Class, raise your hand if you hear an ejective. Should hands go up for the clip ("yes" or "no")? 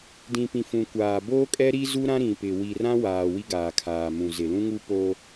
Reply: yes